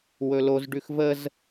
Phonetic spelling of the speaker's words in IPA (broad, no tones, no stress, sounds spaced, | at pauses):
w ɵ l o z ɖ ʉ x v ə z